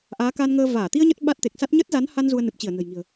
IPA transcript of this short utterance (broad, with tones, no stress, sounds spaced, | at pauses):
ʔ aː˨˦ k aː˧ n ŋ əː˧ v aː˧˩ t̪ i˧ ə̯ ɲ ə˦˥ t̚ ɓ a˦˥ t̚ t̪ e˨˩ k̚ s a˦˥ t̚ ɲ ə˦˥ t̚ z a˨˦ n h a˧ n z u˧ ə̯ n ɨ˨˩ p̚ t͡ɕ i˧˩ ə̯ n ə̤˨˩ j ŋ i̤˨˩ ə̯